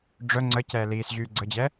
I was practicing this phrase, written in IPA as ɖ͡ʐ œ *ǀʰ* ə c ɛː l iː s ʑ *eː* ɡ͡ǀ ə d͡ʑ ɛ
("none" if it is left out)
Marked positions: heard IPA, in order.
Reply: ŋ͡ǀ, yː

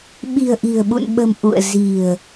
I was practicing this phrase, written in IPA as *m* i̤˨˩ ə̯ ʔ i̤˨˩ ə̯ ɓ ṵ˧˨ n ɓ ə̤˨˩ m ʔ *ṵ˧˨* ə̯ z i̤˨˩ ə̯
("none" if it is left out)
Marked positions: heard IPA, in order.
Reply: ɓ, ṵ˧˨

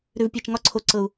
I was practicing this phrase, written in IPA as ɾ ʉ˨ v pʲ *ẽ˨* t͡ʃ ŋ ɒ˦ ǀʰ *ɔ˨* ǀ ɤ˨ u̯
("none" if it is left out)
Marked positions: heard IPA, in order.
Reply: e˨, o˨

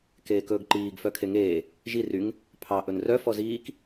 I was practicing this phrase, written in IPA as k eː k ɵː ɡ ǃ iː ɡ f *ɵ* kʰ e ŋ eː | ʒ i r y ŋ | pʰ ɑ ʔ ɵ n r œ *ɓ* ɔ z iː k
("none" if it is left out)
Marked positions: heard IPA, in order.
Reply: œ, f

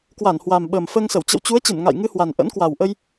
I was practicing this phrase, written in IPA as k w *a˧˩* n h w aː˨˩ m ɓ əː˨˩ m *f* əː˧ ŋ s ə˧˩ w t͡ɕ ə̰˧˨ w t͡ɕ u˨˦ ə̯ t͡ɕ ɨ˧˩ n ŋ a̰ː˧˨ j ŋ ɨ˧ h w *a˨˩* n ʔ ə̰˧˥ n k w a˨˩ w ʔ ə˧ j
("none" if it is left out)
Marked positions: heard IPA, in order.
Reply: a˧˩, f, a˨˩

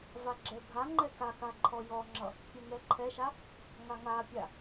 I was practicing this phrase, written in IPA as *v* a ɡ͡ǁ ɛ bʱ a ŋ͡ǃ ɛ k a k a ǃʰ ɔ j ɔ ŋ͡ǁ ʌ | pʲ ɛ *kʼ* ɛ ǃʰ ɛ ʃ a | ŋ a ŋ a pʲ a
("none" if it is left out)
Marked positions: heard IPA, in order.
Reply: v, ŋ

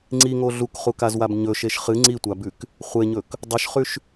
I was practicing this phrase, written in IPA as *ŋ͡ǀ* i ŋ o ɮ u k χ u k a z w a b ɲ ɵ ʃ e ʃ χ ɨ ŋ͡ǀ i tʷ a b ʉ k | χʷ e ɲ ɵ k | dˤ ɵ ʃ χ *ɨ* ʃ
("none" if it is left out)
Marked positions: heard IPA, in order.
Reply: ŋ͡ǀ, ʉ

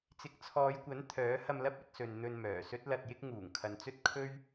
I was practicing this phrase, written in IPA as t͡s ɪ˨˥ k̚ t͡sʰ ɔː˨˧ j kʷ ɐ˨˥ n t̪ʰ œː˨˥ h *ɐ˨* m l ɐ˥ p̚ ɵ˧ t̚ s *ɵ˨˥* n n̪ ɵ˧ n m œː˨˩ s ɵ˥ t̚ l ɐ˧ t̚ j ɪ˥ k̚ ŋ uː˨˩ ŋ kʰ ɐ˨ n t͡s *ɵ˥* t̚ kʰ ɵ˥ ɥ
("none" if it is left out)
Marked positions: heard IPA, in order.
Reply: ɐ˧, ɵ˨, ɵ˥

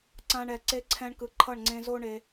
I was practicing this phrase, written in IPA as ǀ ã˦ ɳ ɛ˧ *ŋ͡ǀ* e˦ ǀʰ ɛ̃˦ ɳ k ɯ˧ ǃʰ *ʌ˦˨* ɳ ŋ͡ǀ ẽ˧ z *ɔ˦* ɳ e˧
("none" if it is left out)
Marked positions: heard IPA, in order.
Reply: ǀ, ʌ˦˨, o˦

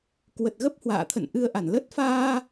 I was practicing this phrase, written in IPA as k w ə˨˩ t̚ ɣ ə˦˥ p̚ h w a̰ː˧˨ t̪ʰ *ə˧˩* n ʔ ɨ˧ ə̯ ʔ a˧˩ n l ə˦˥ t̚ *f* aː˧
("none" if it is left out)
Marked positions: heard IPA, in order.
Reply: ə̰˧˨, f

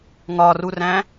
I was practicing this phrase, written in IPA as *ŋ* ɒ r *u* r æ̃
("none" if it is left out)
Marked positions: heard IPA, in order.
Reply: ŋ, u

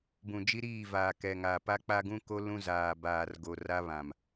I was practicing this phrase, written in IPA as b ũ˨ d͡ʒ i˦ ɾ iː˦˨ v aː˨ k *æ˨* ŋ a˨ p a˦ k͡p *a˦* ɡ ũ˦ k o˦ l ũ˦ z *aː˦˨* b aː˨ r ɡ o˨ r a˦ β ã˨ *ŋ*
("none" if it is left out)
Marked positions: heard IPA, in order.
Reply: ɛ˨, a˦, aː˨, m

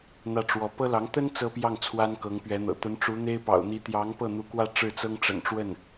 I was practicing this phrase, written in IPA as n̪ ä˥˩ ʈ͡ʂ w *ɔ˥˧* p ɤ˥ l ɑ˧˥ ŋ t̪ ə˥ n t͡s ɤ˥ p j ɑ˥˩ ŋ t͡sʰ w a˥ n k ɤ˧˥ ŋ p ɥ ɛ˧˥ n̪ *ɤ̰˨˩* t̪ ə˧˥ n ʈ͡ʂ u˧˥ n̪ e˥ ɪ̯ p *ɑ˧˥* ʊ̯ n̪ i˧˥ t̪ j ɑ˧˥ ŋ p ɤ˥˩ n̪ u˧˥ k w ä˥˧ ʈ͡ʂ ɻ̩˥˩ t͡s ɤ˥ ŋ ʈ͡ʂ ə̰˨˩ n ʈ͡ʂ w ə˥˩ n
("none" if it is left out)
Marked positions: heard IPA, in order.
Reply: ɔ˧˥, ɤ̰˨˩, ɑ̰˨˩

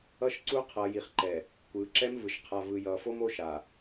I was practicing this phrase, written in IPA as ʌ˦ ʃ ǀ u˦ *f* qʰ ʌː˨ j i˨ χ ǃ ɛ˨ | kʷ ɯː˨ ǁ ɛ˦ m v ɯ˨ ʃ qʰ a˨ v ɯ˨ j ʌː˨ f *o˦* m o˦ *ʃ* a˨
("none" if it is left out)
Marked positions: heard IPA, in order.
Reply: none, o˦, ʃ

